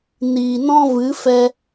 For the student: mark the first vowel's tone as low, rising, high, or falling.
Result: low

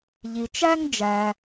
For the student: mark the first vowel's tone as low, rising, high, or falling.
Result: low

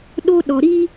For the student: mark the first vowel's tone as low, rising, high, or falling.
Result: high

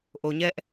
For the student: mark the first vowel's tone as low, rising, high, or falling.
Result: low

